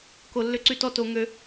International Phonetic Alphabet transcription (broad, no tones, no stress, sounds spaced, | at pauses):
k o lː ʏ ǀ y t ɔ t o ŋ ø